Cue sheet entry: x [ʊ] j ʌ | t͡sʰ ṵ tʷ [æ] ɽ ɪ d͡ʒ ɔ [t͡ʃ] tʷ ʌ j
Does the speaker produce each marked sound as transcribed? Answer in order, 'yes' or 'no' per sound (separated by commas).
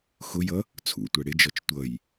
yes, yes, yes